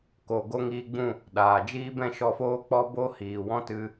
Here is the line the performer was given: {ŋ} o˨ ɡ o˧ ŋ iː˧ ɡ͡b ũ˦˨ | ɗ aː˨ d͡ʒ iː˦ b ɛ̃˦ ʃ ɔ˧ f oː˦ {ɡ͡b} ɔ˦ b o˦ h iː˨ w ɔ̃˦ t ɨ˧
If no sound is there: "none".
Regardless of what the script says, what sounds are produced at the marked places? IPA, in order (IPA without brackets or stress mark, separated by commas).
k, k͡p